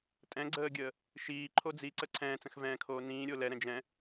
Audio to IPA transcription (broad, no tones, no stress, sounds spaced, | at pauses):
tʼ ɛ̃ ɡ͡ǀ əː ɡʲ əː | ʃ iː ǃʰ o d͡z i ǀ ə ǀʰ ɛ̃ː t͡s ə̃ x v ɛ̃ː kʰ oː n ĩː ɾʲ o l ɛ ɾ ɛ̃ d͡ʒ ɛ̃